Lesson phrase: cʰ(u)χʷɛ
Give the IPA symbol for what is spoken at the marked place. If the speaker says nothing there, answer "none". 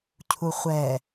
u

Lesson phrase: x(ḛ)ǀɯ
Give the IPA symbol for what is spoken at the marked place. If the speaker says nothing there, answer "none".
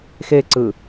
e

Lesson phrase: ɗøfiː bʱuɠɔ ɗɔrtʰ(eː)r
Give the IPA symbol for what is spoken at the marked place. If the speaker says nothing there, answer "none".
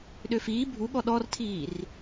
iː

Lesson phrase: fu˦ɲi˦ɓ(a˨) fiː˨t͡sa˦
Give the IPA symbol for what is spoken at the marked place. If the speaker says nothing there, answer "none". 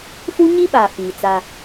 a˨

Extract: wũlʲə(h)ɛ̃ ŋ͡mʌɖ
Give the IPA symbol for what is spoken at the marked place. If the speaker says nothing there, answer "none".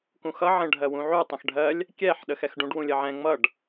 ʕ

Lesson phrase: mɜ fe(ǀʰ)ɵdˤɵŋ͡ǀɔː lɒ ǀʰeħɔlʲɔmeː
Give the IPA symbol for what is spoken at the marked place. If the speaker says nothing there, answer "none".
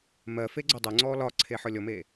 ɡ͡ǀ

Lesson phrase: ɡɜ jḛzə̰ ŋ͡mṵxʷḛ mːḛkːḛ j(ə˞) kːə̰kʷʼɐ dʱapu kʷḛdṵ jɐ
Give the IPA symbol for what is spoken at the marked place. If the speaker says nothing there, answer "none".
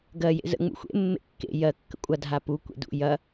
ɜ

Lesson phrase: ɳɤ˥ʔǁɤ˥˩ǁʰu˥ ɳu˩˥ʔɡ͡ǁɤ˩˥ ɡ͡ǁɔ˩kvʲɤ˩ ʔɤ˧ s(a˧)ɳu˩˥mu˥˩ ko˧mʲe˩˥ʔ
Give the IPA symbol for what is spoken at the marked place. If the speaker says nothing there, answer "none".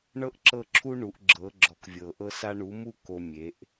a˧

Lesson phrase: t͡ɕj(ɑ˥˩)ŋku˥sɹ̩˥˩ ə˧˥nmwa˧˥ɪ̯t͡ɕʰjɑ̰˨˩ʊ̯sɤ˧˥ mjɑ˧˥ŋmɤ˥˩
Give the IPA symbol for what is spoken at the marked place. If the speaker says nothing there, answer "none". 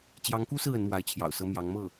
ɑ˧˥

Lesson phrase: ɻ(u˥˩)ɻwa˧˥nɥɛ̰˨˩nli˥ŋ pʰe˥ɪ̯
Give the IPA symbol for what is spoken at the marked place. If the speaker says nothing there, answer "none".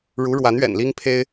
u˧˥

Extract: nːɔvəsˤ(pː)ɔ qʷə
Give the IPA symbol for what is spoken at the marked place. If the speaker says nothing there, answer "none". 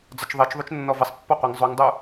pː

